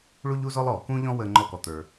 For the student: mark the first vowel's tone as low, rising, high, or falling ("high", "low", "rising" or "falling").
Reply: high